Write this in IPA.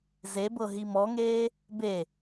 zebɤ ɦimɔŋeː | be

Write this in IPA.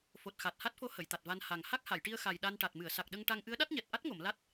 fo˨˩t̚xa˨˩t̚ ha˦˥t̚fo˧˥ hə˨˩˨jt̪a˨˩t̚va˧n ha˨˩ŋ ha˦˥k̚ ha˨˩˨jʈi˧ə̯ xa˨˩jɗa˧nʈa˨˩t̚ mɨ˨˩˨ə̯sa˨˩k̚ɗə˧ŋʈa˧ŋ ʔɨ˧˥ə̯ɗa˦˥t̚ɲɛ˨˩t̚ ʔa˦˥t̚ŋo˨˩˨m la˦˥t̚

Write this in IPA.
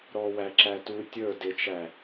ɾɔwæ ǁætu tʲə˞ dɪt͡ʃæ

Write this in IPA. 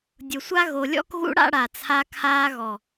dʲʊ˨sʷa˦ ɣo˨lʲɔ̰˦kɣṵ˦ ɽa̰˦ɽa˨ t͡sʰa˦kʰaː˦ɣɔ˨

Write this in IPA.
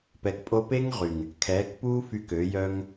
pɛ˨kpʼo˧pe˦ŋ ʁy˨ŋ | kʰɛː˨˦kpuː˦fy˧k ø˨˦jœ˦ŋ

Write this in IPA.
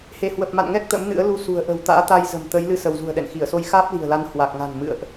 he˧˩hwə˨˩p̚ ma̰˧˨nŋɛ˦˥k̚ t̪ə̰˧˥mnɨ̰˧˥ə̯lu˧ sṳ˨˩ə̯ʔə̤˨˩w t̪a̰ː˧˥t̪a˧jzə̤˨˩mt̪ə˨˦j lɨ˧sə˧˩w zṳ˨˩ə̯ɗɛ̰˧˨nxi˧˩ə̯so˧j xaː˦˥p̚li̤˨˩ə̯la˨˦n hwa˨˩k̚ŋa̤˨˩n mɨ̰˧˨ə̯ʔ

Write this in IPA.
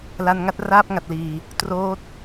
la˧n ŋa˥˩t̚raː˥˩p̚ŋa˨˩t̚liː˨˩ | troː˦˥t̚

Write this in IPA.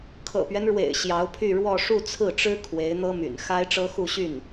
kʰɤ̰˨˩pɥɛ˦nɻwḛ˨˩ɪ̯ ɕjɑ˧˥ʊ̯pʰy˥˧ɻwɔ˥˧ ʂu˥˧t͡sʰɹ̩˥˩ʈ͡ʂɻ̩˥ kʰwe˧˥ɪ̯n̪ɤ˥my̰˨˩n xa˥ɪ̯ʈ͡ʂɤ˥xu˥˧ɕy˥˩n

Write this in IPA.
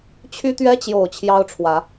t͡ɕʰy˦t̪ɥɛ˦t͡ɕjo˨˩ʊ̯ t͡ɕʰjɑ˦ʊ̯ʈ͡ʂʰwä˨˦

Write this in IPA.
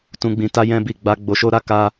tũ˧ɡ͡bĩ˧ ta˦jɛ̃˦bi˦˨ ɡ͡ba˧ ɡ͡bo˧ʃo˦ɾa˦ ka˦

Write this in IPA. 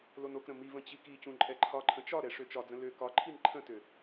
lonokɾə̃ mivə̃ t͡ɕikicũ ǃʼɛǃʰɒǃʰə̃ t͡ʃɒɾɛ ʂøt͡ʃɒd͡zə̃ lø kɒǃʰin ǃʰə̃tø

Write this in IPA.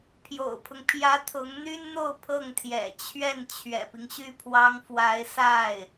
pʰjo̰˨˩ʊ̯pʰʊ˦ŋpʰjä˧˥ t̪ʰʊ˧˥ŋn̪y˥nn̪o˥˧ʊ̯ pʰɤ˥˩ŋt̪ʰjɛ̰˨˩t͡ɕʰɥɛ˥˩n t͡ɕʰɥɛ̰˨˩pi˦ŋɕy˥˩pʰwɑ˥ŋ fwa˧˥ɪ̯ sa˥˩ɪ̯

